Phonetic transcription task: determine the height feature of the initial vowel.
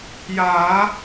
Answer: low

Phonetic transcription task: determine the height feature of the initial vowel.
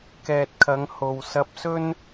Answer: mid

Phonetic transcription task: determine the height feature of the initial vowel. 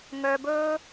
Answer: mid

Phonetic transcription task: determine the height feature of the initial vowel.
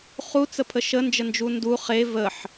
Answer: high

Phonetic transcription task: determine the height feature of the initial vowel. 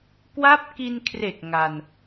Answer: low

